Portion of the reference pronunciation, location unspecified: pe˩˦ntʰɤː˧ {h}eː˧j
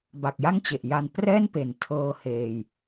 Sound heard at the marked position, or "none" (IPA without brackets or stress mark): h